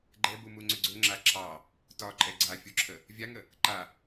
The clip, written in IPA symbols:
ɡ͡ǃ ɛ b u m u ŋ͡ǀ ʏ ɡ͡ǀ ɵ ŋ͡ǁ a ǁʰ ɑ | t ɒ ǃʼ ɛ ɡ͡ǀ a fʲ u ǁʰ ə | vʲ a ŋ ə | ǃ a

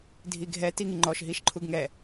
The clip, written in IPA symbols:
dʱ i ɡʱ ɛ t i ŋ i ŋ͡ǃ ɔ ʃ ɦ i ʃ ǃʰ u ɡ ŋ ɛ

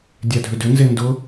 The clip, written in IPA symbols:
dʲ a dʱ ʏ d ʏ n z e n d ʊ

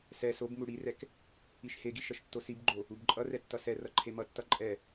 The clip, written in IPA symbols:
s ɛ s o b m u ɽ i r ɛ k | i ʃ h e ɡ i ʃ ʌ ʃ tː o s i b ɡ͡ǃ o | u b ǃʼ ʌ r ɛ tː ʌ s ɛ r ʌ ǃʰ e m ʌ tː ʌ ǃʼ ɛ

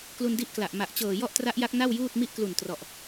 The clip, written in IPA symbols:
k l u˧ n d i˦˥ ʔ k l a˨˩ ʔ m a˨˩ ʔ t͡ɕ ɤː˨˩ j ɔ˥˩ ʔ t r a˦˥ ʔ j a˦˥ k̚ n a˥˩ w j uː˥˩ t̚ m i˥˩ ʔ k l u˨˩ n t r ɔ˨˩ ʔ

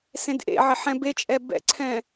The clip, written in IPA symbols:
s ẽ d ʔ ḛ ʕ ɪ ħ ɛ̃ b e t͡ʃʼ ɛ b ɛ̰ ǀʰ ɛ̃

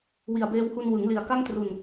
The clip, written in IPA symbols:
w i˨˩ a̯ b eː˧ w h u˧ n w ɯ˩˦ ŋ l i˨˩ a̯ k a˥˩ ŋ t r u˨˩ n

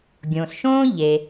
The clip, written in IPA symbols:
ɡʲ õ˩ s ʃ õː˥ ʎ e˩

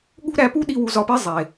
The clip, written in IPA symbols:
ɠ ṳ˦ ɾ æ˧ p u˦ ɗ i˧ w u˧ z ɒ˧ p i˦ zˤ e˨

